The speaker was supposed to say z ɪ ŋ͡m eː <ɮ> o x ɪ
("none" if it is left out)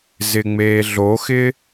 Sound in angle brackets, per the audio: ɮ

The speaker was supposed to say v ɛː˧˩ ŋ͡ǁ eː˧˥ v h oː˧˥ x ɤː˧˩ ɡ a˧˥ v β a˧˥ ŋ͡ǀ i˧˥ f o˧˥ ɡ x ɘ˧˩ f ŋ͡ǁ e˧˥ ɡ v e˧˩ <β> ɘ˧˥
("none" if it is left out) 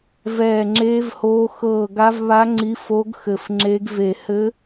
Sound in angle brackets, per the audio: h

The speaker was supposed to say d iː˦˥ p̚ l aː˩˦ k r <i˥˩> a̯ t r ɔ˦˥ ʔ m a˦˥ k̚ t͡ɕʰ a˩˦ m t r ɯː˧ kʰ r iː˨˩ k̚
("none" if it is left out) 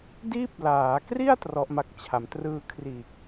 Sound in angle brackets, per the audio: i˥˩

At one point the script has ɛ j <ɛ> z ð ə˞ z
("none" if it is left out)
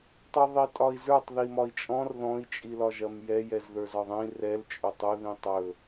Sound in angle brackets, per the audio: ɛ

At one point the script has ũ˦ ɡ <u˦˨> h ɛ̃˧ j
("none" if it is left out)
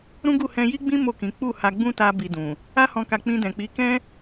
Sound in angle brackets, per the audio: u˦˨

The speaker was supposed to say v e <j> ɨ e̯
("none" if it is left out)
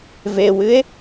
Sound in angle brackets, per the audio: w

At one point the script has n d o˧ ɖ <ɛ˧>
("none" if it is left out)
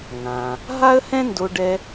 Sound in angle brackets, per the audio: ɛ˧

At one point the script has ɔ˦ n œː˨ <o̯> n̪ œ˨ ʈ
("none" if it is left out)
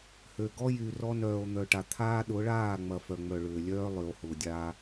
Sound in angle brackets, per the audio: o̯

